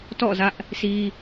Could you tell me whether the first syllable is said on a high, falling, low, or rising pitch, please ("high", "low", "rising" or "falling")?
falling